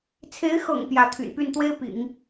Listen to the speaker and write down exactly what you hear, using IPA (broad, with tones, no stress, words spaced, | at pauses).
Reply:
t͡sʰe˧˥ɪ̯xɤ̰˨˩ŋ pjä˧˥t̪ʰy̰˨˩npy˥˩n t̪we˥ɪ̯ pḭ˨˩˦ŋ